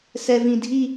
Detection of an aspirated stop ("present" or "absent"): absent